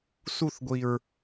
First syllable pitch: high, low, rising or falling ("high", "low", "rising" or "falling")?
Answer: falling